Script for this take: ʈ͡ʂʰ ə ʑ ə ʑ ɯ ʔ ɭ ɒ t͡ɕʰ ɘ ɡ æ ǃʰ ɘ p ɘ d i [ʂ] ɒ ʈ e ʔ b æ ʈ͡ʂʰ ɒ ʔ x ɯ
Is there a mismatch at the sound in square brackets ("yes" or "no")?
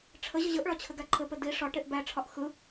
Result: no